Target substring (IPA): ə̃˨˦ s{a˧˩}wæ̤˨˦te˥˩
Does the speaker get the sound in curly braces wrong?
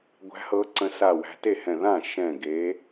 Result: no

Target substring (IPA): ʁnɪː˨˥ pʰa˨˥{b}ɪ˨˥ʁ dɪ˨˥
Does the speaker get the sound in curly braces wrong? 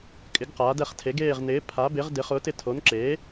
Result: no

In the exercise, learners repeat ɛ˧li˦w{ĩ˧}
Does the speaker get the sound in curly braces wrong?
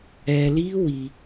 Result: yes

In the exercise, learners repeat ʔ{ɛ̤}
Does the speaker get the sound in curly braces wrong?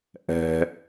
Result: no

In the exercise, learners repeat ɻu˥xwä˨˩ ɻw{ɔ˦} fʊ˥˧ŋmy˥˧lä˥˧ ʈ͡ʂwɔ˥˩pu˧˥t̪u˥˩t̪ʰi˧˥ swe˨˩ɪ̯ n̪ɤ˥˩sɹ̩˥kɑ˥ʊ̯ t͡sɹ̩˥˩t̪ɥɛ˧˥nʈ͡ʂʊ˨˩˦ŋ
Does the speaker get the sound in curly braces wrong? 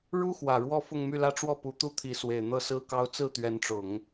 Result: yes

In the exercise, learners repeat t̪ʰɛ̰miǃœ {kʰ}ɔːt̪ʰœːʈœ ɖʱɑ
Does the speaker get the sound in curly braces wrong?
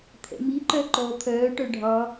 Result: yes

